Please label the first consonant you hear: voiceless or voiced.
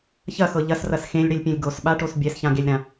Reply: voiceless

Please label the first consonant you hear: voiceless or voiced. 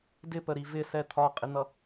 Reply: voiced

